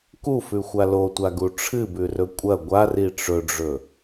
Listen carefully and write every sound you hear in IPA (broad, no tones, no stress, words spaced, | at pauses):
kufʉxʷa lotʷaɡu ʈ͡ʂʰɨbʉrɵ kʷʼɐ ɡʷari ʈ͡ʂɵɖ͡ʐɵ